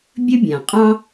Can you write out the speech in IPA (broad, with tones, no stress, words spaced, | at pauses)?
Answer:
bʲə˥bʲã˩qʼɑ̃˥